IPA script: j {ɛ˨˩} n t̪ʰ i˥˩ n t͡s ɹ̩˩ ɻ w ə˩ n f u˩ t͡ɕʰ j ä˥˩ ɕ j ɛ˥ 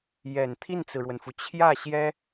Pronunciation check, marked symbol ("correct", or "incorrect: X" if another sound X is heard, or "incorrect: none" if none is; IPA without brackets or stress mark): correct